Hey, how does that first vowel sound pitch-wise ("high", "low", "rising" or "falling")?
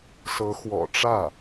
rising